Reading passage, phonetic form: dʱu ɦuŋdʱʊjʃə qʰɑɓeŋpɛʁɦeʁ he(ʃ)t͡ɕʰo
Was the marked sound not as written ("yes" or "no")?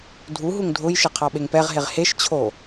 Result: no